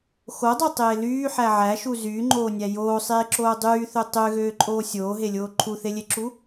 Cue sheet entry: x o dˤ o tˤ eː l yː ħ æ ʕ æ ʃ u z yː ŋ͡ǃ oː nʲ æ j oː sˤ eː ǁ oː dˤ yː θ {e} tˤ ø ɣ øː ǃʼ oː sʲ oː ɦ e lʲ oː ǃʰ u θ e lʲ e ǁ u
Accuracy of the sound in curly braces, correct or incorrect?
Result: incorrect